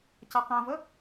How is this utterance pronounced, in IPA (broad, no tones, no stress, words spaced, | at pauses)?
caqãvə